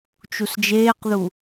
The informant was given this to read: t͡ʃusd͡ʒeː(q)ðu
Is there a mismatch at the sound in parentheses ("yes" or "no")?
no